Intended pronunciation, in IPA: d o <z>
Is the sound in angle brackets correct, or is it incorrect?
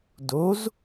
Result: correct